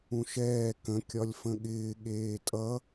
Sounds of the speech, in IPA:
ũ ʃ ɛː k ə̃ kʲ ɒ lʲ f ə̃ ɠ ɪː ɠ eː tʼ ʌ

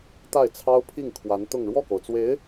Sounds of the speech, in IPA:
t̪ a˥˩ ɪ̯ t͡sʰ ɑ˥ ʊ̯ pʰ i˥˩ ŋ kʰ w a˧˥ n t̪ ʊ˥˧ ŋ ɻ w ɔ˥˩ k o˩ ʊ̯ t͡s w e˧˥ ɪ̯

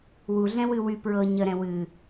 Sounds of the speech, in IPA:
w u ɮ ɛ̃ w ɨ w y p ɹ ɤ ɲ ə ɾ ɛ̃ w ɨ

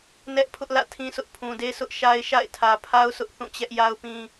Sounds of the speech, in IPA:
n ɛ˦ ʔ pʰ ʊ˦ ʔ l ä̰˦˨ tʰ ĩ˦ s ʊ˦ ʔ pʰ ũ˨ d e˦ s ʊ˦ ʔ ʃ a˦ ɪ̯ ʃ a̰˦˨ ɪ̯ tʰ ä˨ pʰ a˦ ʊ̯ s ʊ˦ ʔ θ ũ˦˨ t͡ɕ ɛ˦ ʔ j a˦ ʊ̯ p ĩ˦

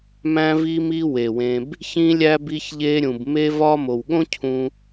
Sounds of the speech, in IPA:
m æ̃˧ v i˧ m i˧ w e˨ w ẽ˧ b | ç ĩ˧ lʲ æ˧ b i˧ ç ʎ e˧ ɾʲ ũ˨ b m e˧ v ɒ˧ m o˨ w ɠ õ˦ cʰ ũ˧

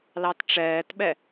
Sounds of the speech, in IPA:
l ɑ t ʈ͡ʂ ɛː t ɓ ɛ

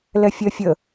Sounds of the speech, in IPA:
l ɛ fʲ ɜ fʲ ə

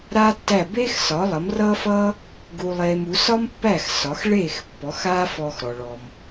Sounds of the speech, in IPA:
ɾ aː˥ tː æ˥˩ b eː˥ x s ɒ˩˥ lˠ ʌ˩˥ m r ʌː˥ f ʌː˥ | ɡ u˧ lˠ eː˧ m u˩˥ s ɒ˥ m pː æ˥˩ x s ɒ˩˥ x ɭ eː˥˩ x pː ɔ˩˥ x aː˥ f ɔː˧ x ɾ ɔ˩ ɭ ɔ˩ m

